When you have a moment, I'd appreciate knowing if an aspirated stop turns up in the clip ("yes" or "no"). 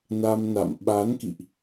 no